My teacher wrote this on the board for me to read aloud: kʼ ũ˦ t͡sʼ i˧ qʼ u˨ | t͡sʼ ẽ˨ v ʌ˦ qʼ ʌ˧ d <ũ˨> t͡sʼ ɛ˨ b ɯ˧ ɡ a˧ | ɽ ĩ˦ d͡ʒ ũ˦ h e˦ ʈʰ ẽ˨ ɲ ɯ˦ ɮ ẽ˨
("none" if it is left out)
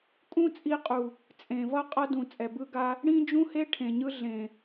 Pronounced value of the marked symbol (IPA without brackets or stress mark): ũ˨